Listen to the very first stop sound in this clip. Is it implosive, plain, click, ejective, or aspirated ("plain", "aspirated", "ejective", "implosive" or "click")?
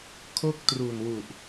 aspirated